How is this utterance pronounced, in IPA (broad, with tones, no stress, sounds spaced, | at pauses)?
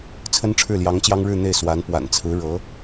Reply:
t͡sʰ ə˥ n ʈ͡ʂʰ ɻ̩˥˩ l j ɑ˧˥ ŋ t͡ɕ j ɑ˥ ŋ ɻ ɻ̩˥˧ n̪ e˥˩ ɪ̯ s w a˧˥ n p w a̰˨˩ n t͡sʰ ɹ̩˧˥ ɻ ɤ˧˥